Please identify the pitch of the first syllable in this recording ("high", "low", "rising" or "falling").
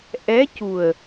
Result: rising